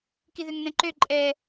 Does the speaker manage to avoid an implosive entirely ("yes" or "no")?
yes